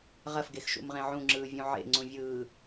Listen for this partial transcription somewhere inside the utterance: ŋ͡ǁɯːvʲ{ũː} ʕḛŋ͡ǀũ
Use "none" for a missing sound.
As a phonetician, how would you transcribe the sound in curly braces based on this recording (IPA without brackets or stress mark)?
ũ